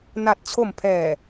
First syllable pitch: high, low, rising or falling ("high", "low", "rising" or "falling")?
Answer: low